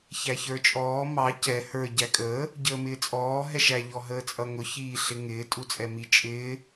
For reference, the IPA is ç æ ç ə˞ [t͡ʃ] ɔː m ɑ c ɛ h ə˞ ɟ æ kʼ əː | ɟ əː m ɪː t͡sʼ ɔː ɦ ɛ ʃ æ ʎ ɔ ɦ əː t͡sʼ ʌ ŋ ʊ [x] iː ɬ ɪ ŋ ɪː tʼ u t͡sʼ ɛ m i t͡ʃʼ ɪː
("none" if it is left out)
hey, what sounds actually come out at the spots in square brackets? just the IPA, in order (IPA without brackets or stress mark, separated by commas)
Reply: t͡ʃʼ, ç